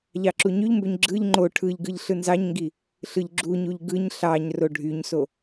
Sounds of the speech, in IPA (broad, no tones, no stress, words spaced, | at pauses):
ʎɑǁuɲyʎmbøɲ ɡ͡ǁɯʎ ŋ͡ǃo ʈʰɯʎɡɯʎ ɬɯnzɑɲŋɡi | ɬɯʎɡ͡ǁuɲuʎ ɡɯɲ ɬɑɲ roɖʱyɲso